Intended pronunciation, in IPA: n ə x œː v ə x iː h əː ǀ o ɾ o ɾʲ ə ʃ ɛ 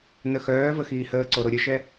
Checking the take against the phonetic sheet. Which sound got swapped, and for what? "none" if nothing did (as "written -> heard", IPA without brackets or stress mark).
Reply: none